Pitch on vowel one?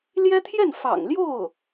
high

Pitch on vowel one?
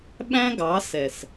high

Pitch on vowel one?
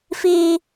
high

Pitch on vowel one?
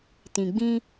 low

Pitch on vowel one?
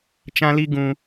high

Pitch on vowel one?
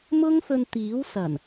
high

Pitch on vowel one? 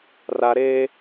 high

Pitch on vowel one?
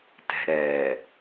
low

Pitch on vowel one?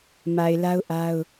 low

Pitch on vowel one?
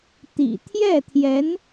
low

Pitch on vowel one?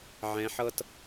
rising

